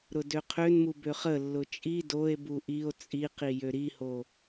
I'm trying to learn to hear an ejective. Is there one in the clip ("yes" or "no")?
yes